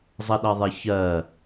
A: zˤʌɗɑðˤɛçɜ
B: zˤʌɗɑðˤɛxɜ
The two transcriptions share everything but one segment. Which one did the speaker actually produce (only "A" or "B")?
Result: A